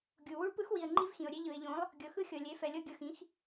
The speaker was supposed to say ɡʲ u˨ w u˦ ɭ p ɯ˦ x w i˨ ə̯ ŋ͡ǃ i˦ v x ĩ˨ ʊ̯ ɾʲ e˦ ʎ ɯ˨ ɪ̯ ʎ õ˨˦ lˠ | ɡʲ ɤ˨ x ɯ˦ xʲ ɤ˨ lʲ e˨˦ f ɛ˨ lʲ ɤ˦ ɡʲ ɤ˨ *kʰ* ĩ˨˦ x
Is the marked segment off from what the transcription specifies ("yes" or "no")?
yes